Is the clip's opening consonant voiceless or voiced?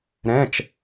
voiced